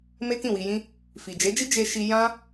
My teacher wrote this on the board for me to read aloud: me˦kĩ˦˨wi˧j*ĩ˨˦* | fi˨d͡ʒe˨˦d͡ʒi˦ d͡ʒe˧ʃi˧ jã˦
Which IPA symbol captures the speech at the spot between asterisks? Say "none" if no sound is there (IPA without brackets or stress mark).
ĩ˦